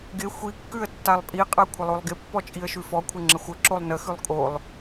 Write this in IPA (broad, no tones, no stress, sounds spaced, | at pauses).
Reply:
ɡ ɪ xʷ i kː ʉ ə̯ tː a lˠ pʼ i qʼ a kʷʰ ɪ lˠ o lˠ ɡ ɪ pː ɔ t͡ʃʼ i ə̯ ʃ ʉ f ɔ kʷʰ ɪ ŋ͡ǁ ə xʷ ə ǁ o lˠ n ə x ʉ lˠ kʼ o lˠ